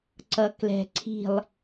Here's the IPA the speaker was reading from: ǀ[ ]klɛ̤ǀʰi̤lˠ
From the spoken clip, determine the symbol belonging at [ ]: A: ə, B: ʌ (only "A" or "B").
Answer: B